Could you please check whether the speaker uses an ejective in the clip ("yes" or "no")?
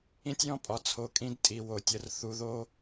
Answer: yes